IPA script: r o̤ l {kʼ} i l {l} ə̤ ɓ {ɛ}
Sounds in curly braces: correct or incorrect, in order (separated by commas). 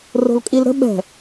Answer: correct, incorrect, incorrect